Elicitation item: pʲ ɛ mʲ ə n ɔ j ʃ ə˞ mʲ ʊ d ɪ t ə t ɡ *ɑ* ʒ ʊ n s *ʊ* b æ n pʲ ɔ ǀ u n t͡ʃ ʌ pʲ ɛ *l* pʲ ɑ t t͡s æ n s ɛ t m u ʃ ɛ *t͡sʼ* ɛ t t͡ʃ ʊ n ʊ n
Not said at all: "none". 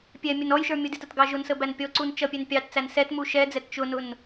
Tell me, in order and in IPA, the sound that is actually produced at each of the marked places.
ɑ, ə, n, d͡z

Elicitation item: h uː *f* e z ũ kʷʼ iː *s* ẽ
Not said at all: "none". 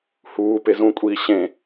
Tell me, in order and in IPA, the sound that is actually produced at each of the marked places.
p, ɕ

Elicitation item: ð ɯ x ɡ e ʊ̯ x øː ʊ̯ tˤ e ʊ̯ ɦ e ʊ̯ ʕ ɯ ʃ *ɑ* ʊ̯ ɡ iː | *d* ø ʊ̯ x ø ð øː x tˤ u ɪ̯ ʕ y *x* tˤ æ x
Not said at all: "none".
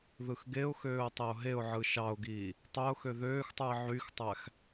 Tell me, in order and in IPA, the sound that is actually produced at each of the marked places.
ɑ, tˤ, x

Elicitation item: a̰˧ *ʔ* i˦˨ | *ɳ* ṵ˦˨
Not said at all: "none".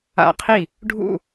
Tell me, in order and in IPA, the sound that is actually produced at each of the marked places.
qʰ, ɖʱ

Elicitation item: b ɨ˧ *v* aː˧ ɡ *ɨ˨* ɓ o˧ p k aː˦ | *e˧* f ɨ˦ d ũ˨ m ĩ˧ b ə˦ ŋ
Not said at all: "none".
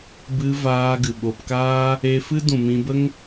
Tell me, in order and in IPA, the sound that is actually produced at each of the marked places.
v, ɨ˨, e˧

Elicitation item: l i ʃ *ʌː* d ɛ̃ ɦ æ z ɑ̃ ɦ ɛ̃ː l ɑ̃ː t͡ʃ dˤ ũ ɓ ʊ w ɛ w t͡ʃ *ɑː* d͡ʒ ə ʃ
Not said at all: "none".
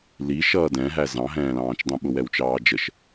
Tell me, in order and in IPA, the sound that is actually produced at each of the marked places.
ʌː, ɑː

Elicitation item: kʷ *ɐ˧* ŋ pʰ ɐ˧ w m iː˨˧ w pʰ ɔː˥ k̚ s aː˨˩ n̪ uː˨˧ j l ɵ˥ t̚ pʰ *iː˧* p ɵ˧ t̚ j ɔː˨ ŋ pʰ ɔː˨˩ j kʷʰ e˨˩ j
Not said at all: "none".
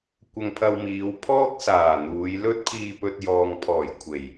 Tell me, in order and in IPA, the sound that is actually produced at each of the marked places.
ɐ˧, iː˧

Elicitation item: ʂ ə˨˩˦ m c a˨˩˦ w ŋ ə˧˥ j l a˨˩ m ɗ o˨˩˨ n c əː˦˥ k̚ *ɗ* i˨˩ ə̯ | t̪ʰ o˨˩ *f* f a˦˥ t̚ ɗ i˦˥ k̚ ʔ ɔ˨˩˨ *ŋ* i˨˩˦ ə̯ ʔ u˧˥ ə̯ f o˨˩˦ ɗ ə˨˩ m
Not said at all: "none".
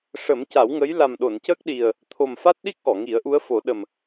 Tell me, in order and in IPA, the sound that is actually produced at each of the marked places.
ɗ, m, ŋ

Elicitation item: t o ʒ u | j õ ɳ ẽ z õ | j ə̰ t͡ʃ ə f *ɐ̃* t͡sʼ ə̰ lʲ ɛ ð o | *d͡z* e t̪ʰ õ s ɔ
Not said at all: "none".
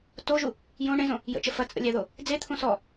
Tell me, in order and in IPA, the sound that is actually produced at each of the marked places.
ɐ, d͡z

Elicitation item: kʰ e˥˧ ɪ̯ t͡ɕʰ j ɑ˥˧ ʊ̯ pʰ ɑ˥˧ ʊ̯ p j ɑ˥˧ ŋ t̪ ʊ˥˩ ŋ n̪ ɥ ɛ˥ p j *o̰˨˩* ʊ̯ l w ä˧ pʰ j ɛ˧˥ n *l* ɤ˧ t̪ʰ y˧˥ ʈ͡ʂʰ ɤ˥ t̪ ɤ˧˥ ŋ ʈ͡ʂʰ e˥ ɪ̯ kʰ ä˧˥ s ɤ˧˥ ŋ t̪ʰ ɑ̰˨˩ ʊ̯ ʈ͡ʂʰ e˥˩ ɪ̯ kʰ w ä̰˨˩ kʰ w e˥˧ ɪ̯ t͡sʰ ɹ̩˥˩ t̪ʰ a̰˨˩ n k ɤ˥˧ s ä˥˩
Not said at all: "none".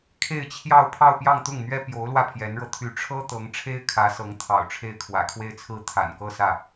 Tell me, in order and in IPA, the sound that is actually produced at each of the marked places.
o˧˥, ɻ

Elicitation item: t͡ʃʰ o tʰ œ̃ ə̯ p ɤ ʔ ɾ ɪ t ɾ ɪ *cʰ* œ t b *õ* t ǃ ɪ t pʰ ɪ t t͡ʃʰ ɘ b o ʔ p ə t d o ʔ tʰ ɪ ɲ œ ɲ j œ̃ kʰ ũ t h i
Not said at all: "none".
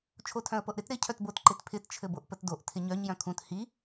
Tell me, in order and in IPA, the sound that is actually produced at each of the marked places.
cʰ, o

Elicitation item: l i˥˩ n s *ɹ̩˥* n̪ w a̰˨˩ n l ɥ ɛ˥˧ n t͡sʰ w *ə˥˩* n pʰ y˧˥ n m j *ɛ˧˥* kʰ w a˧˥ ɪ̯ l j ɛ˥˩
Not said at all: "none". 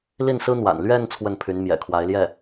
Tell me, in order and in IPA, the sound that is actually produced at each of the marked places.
ɹ̩˥, ə˥˩, ɛ̰˨˩

